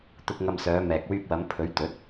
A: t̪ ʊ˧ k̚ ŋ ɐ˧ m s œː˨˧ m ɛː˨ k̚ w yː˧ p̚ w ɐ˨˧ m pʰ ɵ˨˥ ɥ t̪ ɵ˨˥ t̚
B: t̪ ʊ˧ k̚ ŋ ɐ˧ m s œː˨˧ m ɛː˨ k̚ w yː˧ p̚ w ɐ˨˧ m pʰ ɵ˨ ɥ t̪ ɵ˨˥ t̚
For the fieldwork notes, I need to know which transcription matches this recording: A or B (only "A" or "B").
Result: A